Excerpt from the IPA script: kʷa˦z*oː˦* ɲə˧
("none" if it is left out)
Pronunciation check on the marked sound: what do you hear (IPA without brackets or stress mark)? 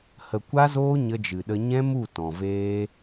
oː˦